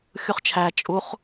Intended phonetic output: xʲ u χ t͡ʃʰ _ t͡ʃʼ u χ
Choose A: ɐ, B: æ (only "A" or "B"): B